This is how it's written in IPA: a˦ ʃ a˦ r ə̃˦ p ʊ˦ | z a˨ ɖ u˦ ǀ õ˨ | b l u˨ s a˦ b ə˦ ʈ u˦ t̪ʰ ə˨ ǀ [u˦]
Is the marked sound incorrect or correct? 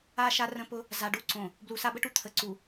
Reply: incorrect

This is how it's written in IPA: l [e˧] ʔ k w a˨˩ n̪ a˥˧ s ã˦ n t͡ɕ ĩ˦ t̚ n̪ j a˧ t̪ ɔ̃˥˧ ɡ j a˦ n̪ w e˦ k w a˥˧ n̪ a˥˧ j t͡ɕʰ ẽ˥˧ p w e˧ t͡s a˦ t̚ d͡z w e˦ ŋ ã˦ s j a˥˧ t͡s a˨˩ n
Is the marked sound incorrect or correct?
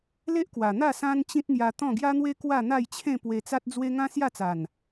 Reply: incorrect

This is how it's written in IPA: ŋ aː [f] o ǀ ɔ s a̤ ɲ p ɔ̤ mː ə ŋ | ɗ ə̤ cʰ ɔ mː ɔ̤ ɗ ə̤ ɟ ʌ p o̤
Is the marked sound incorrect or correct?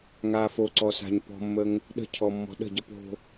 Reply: correct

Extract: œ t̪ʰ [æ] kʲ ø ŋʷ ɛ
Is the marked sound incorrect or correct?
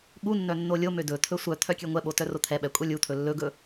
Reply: incorrect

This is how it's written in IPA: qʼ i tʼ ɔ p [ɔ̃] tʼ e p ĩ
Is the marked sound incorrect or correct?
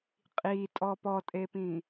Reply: incorrect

